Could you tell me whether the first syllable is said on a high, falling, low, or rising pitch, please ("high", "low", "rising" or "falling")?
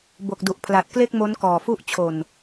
low